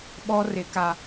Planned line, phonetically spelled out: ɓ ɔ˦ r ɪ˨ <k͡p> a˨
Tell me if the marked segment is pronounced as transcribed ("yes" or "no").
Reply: no